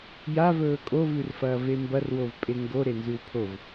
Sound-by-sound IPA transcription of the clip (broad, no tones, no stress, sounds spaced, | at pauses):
j a v ɵː kʼ o v ʉ r f ɐː v e m b ɐ r w o v pʼ e ŋ ɡ o ɾ e n z ʉ w pʰ o v